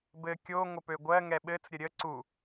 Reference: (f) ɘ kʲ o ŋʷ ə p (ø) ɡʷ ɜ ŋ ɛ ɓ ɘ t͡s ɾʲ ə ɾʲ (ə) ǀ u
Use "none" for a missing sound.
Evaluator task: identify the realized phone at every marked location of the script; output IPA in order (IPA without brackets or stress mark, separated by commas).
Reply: b, ø, ə